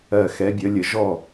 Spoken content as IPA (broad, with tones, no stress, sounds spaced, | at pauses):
ɜ˧˩ x ɛ˨˦ bʲ ə˨˦ lʲ ə˧˩˧ ʒ ɔ˥˩